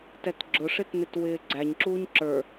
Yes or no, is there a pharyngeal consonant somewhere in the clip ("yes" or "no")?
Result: no